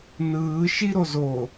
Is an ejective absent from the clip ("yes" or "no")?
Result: yes